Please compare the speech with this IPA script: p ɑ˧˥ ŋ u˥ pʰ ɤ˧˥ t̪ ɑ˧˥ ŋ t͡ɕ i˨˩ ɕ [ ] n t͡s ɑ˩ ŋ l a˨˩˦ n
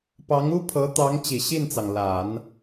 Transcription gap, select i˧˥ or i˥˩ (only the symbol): i˥˩